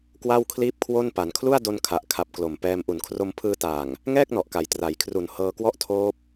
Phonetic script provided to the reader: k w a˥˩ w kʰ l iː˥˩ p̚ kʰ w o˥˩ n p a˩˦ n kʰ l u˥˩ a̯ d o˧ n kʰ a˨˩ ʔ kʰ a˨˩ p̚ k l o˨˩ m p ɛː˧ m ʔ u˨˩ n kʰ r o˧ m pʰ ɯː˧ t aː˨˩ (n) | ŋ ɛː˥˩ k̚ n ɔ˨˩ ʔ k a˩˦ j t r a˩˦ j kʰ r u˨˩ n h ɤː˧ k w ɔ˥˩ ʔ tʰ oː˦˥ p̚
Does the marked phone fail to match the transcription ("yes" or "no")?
yes